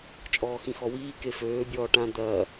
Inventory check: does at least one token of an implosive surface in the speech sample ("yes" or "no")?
no